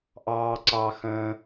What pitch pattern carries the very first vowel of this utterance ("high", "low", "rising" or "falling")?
low